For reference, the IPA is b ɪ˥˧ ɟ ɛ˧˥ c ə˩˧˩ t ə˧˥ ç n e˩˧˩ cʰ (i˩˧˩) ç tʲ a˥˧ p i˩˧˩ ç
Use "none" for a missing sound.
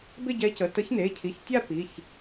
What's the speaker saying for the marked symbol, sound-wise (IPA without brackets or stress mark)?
i˩˧˩